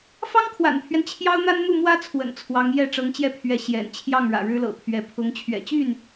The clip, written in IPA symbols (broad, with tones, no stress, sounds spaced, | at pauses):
f ɑ˥ ŋ kʰ w a̰˨˩ n pʰ ɥ ɛ˦ n t͡ɕʰ j ɑ˥ ʊ̯ n̪ a˥ n n̪ u˥˩ m w ä˥ t͡sʰ w ə̰˨˩ n t͡sʰ w ɑ˧˥ ŋ j ɛ˥˩ ʈ͡ʂ ɤ˧˥ ŋ t͡ɕ j ɛ˥˩ pʰ ɥ ɛ˧˥ ɕ j ɛ̰˨˩ n t͡ɕʰ j ɑ˥˩ ŋ ɻ ä̰˨˩ ɻ ɻ̩˥ l ɤ̰˨˩ pʰ ɥ ɛ˧˥ pʰ ʊ˧˥ ŋ t͡ɕʰ ɥ ɛ̰˨˩ t͡ɕ y˥˩ n